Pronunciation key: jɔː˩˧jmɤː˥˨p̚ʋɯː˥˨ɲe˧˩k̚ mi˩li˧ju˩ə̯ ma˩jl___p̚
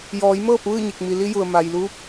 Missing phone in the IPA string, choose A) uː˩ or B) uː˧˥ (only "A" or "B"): B